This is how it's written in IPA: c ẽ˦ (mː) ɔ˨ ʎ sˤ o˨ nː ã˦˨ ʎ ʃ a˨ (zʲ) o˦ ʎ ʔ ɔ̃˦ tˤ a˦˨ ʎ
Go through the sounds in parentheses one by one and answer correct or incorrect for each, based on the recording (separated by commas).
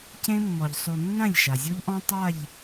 correct, correct